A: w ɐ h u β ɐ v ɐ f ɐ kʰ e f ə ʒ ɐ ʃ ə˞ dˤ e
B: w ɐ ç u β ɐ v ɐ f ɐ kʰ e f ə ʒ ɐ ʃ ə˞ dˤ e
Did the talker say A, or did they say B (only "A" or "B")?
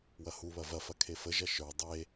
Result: A